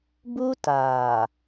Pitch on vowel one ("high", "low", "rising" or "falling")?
high